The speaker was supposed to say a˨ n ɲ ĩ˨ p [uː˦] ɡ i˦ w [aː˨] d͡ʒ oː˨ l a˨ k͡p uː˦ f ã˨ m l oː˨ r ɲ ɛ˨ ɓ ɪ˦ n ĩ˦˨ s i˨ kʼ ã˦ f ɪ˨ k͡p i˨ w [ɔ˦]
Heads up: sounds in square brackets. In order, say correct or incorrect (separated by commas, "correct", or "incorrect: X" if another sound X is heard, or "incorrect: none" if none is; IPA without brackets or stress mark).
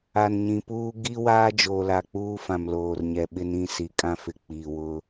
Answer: correct, incorrect: aː˦, incorrect: ʊ˦